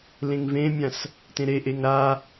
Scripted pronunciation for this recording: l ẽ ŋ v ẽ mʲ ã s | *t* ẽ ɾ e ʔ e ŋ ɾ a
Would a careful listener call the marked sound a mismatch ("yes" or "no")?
no